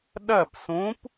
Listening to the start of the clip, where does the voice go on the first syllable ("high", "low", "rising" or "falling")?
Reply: falling